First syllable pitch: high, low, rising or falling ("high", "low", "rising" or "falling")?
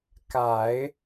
low